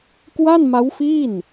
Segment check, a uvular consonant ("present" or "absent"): absent